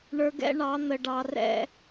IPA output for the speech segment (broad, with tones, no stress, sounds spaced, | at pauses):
ɳ ə˞˨ ɡ ɛ̰˦ ɳ ɑ˨˦ n̪ ə˨ ɖ ɑ˨ r ɛ̰˦